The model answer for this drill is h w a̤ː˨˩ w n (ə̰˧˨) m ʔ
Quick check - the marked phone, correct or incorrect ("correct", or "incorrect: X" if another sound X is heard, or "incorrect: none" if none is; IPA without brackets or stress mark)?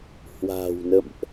correct